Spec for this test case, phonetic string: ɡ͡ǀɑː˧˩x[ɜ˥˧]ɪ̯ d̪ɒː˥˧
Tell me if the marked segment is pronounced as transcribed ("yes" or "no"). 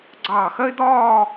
no